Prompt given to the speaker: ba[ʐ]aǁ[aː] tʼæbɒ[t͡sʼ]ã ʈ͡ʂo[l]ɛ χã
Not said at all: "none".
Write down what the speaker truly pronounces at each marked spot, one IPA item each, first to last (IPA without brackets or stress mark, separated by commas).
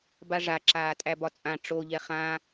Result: ʐ, aː, t͡sʼ, ʎ